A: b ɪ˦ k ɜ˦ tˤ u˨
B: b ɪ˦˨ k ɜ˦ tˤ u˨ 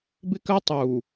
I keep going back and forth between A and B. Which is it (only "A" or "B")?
A